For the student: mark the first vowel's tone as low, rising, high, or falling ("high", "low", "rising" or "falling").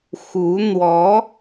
rising